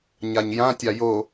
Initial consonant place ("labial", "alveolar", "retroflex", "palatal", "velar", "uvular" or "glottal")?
palatal